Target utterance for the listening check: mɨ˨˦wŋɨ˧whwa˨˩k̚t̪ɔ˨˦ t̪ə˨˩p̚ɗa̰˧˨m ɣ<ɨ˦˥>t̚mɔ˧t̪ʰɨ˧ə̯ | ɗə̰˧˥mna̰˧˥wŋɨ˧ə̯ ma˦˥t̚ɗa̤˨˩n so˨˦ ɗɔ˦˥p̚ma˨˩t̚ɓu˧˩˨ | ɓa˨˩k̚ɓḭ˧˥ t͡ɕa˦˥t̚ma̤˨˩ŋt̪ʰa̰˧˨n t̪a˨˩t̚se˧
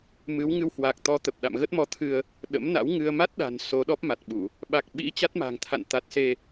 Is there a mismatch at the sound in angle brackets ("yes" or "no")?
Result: yes